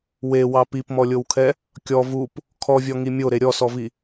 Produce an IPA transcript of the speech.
wewɑ pipmɔlʲowkʰɛ | kʲɔ vup | kʰɔvʲɔŋi mʲoɾe ɾʲɔsɔvi

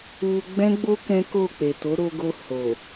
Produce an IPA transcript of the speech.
u˧ɡ͡bɛ̃˦ɡ͡bo˦ kɛ̃˦ko˦˨k͡pe˨ to˨˦ɾo˧ɡo˧ ho˨

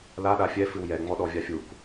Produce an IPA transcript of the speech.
la ɗafʲɛ fɨwjɛ ŋ͡mɔɗɔvʲafʲuk

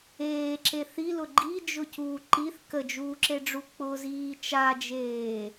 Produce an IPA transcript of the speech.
eːǁe θilʊ ɡ͡ǃid͡ʒʊcuː ǃiθ kəd͡ʒuːǁeɖ͡ʐu k͡pʊziː t͡ʃad͡ʒeː

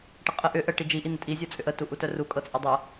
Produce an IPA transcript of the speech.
ʈəqʼə ʔʏ ʔə ʈid͡ʒi ʔin̪ətʼi zʲɤt͡sʼʏʔə tuʔutœru kʼɤt͡sʼədˤɤ

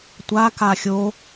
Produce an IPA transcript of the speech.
tʷaka xʲo

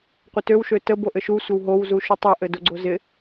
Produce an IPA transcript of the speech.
qʷətøwʃø təb oʔɘʃu sʷəwɦow zuʃotˤɘ ʔɘdoɡ͡ǀozɪ

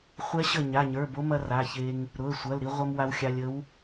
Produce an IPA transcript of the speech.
χʷɛ˧˥ɕə˧˩ ɲa˩˧˩ɲə˞˩˧˩bo˧˥mɐ˧ ra˩˧˩çe˧ŋ | ɾʊ˩˧˩ə̯sʷɐ˩˧˩l ɾi˧ʁʷɐ˧m wa˧wxʲa˧lʲ ə˧˥w

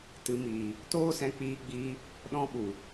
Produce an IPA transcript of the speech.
tɨ˧ miː˨ | toː˦sɛ̃˧ k͡piː˧ɡ͡biː˧ | ɗɔ̃˦ɓu˨

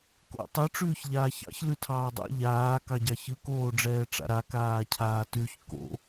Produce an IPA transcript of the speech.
ko̰tˤɯ ʈ͡ʂʉːçʎaːçɑ̰ç lʉtʰɑːdˤa̰ ʎaː kɑɟɑçɯ koːɖ͡ʐɛːʈ͡ʂa̰ɾa kaːcʰaːtʉç ko̰

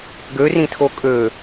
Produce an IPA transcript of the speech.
ɡørĩtʰo kʼø

